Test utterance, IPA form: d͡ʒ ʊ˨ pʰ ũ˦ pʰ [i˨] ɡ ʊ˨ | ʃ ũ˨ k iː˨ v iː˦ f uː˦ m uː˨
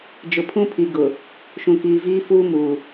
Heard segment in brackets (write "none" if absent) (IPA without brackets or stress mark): i˨